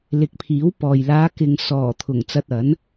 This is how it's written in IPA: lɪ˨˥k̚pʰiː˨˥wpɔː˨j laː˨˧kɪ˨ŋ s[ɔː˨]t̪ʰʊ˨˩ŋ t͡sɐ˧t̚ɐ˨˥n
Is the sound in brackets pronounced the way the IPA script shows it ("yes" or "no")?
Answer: no